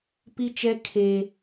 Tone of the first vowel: high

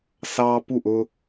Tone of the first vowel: high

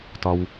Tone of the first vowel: low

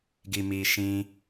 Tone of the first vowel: low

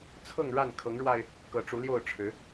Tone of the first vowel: falling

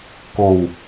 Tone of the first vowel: low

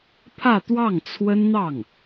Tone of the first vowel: falling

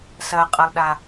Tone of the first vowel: low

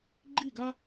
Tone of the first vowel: falling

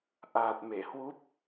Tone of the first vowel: low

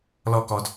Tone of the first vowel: high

